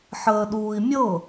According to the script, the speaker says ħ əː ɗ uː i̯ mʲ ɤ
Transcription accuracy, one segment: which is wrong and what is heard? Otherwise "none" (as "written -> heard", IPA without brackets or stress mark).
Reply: none